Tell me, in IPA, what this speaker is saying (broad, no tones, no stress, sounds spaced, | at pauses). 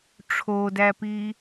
ʈ͡ʂʰ o d æ p iː